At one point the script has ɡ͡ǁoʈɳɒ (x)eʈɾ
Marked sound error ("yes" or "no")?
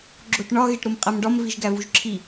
yes